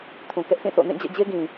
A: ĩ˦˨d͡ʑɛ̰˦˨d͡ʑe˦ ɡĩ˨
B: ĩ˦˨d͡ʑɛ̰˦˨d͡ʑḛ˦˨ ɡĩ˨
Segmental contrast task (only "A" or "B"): A